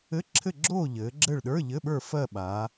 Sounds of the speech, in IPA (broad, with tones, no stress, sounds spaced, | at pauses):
ɘ˧˥˧ ǁʰ ɘ˦˨ ɡ͡ǁ oː˦˨ ʎ ɘː˩˧ ɡ͡ǁ ɘ˦˨ ɭ ɗ ə˞˧˥˧ ʎ ɘ˧˥˧ ɓ ə˞˦˨ f ɜ˦˨ ɓ aː˩˧